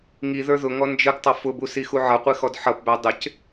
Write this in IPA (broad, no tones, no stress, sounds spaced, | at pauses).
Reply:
ŋ i ð ə˞ ð ʊ ŋ ɔ n d͡ʒ ə ɡ tˤ ʌ f ʊ b u s i x u ʕ ʌ qʷ i x ɔ d ħ ʌ p b æ dˤ ɪ c